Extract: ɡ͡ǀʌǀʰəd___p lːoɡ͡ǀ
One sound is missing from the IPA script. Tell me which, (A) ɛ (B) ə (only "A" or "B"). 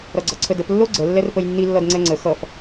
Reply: B